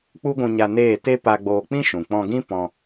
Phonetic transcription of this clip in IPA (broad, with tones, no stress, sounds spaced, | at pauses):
k͡p u˦ ɡʷ ũ˧ ɲ a˧ n eː˦˨ t e˦ p a˧ ɡ͡b oː˧ k͡p ĩ˦ ʃ ũ˨ k͡p ɔ̃˧ ɡ ĩ˦ p ɔ̃˧